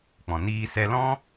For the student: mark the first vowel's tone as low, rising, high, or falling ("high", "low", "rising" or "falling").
low